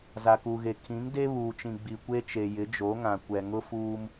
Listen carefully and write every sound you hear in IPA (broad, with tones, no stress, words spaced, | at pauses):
za˨ku˨ɣe˨ kʰĩ˨˦ŋde˦ βuː˨t͡ʃĩ˨ ɡ͡bi˨kʷe˦t͡ʃe˨ jɪ˨˦d͡ʒo˨˦ŋã˨ kʷɛ˨ŋʊ˦fuː˦m